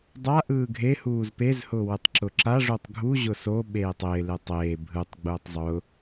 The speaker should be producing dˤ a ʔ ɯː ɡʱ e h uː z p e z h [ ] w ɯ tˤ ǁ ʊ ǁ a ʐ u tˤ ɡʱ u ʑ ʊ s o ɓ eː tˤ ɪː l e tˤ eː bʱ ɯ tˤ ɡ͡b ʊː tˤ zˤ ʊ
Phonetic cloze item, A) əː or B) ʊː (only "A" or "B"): B